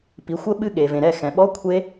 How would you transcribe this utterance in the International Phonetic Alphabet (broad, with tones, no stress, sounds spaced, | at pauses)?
p i˩˥ xʷ ə˦˥ ɓ ɨ˦˥ ɠ e˩ v ẽ˩ ɾ ɛ˧˩ x ɛ̃˩ ɓ ɔ˧˥˧ kʷʰ e˦˥